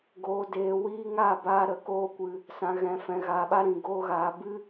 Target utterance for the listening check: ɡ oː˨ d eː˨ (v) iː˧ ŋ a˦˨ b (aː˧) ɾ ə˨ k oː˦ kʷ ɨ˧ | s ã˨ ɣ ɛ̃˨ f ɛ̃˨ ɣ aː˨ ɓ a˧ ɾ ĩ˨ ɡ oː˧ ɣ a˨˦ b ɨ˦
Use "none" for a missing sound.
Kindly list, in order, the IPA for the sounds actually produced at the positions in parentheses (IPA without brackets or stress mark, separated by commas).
w, aː˧